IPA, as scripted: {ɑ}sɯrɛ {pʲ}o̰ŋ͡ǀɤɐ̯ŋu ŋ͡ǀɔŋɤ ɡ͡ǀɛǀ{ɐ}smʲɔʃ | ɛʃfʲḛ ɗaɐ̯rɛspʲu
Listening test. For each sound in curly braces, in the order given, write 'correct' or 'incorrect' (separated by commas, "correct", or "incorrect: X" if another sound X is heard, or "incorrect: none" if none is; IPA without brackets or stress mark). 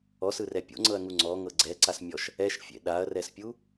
incorrect: ɔ, correct, incorrect: a